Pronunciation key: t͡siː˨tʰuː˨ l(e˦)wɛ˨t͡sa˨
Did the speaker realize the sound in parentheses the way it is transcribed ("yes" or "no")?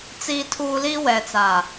no